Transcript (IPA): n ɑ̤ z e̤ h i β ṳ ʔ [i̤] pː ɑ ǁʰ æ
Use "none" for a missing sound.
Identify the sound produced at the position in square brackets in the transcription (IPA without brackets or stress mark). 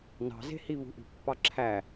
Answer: i̤